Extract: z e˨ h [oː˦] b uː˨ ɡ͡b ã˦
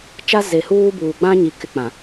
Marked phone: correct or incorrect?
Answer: incorrect